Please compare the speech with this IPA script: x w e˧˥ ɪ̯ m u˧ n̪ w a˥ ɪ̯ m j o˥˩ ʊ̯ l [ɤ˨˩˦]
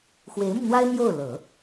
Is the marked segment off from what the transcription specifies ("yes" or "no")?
no